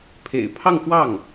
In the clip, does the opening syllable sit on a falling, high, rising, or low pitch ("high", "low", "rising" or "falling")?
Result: low